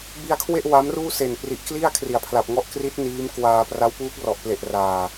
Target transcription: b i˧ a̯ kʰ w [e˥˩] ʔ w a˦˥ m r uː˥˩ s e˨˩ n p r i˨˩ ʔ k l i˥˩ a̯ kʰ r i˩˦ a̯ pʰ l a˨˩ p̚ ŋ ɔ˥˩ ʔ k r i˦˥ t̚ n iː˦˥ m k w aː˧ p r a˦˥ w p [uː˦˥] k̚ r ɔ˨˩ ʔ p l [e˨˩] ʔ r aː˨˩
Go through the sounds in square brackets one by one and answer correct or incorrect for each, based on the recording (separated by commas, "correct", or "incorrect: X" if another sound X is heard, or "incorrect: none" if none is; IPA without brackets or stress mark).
correct, correct, correct